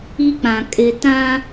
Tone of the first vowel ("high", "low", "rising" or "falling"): high